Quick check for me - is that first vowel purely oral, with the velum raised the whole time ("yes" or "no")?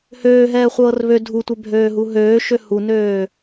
yes